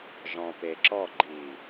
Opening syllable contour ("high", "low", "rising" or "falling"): low